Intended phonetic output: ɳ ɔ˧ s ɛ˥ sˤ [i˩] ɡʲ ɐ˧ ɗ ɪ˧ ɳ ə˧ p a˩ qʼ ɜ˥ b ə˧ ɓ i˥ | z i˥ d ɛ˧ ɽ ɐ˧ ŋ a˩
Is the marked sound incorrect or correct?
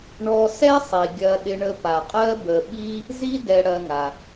correct